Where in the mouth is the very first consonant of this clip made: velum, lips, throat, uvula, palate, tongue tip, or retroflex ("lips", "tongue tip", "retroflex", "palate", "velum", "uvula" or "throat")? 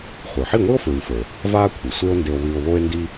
uvula